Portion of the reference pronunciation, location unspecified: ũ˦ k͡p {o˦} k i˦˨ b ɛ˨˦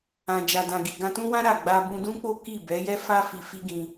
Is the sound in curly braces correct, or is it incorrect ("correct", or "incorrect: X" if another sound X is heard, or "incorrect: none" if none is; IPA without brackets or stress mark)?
correct